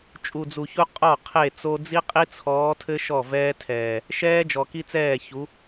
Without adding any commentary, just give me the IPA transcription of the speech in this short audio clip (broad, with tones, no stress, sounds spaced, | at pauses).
t͡ʃʼ u˨ d͡z u˨ ç u˦ qʼ ɔ˦˨ qʰ e˦˨ t͡s o˦ d͡z i˦ qʼ i˦ t͡sʰ ɔː˨˦ tʰ ɘ˦ ʃ ɔ˦˨ v ɛː˦ tʰ ɛː˨ | ʃ ɛː˦ d͡ʒ ɔ˨ k i˦ t͡s ɛː˦˨ ç u˨˦